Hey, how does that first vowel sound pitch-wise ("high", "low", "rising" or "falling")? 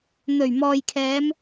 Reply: low